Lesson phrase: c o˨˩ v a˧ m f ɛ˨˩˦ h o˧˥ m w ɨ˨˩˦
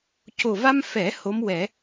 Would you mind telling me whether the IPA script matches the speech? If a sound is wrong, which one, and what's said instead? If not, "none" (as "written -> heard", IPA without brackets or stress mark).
ɨ˨˩˦ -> ɛ˨˩˦